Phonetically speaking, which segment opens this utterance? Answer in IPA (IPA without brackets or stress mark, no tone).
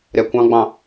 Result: ɾʲ